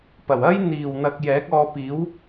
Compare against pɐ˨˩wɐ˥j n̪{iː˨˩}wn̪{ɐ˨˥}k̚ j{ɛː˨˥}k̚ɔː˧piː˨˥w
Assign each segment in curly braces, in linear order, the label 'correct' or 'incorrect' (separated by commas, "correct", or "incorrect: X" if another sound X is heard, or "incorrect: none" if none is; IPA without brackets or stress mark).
correct, incorrect: ɐ˨, correct